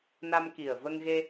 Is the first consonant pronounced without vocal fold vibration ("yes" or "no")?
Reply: no